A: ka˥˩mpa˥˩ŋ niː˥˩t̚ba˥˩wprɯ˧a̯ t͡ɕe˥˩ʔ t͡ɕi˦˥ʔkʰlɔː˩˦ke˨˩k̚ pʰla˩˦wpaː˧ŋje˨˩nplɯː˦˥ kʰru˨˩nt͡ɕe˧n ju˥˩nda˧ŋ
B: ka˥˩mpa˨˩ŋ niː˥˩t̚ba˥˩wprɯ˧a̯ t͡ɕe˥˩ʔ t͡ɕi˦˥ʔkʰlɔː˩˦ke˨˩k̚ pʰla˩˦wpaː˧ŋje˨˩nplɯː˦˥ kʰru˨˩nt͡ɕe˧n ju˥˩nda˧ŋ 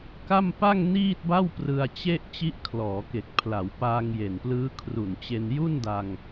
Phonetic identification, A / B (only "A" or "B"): A